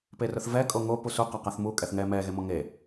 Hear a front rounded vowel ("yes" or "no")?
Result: no